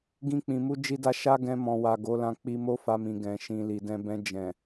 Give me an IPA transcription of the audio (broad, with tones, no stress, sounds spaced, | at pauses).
ɡ ĩ˧ k͡p ĩ˨ m u˧ d͡ʒ i˧ d a˧ ʃ a˦ ɡ ɛ̃˧ m ɔ̃˨ w a˨ ɡ o˨˦ l ã˧ k͡p i˧ m o˦ f a˧ m ĩ˨ ɡ ɛ̃˨ ʃ ĩ˨ l i˨ d ɛ̃˧ b ɛ̃˧ d͡ʒ ɛ̃˨